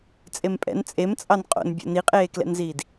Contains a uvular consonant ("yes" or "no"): yes